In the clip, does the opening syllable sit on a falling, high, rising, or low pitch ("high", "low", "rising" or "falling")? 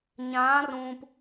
rising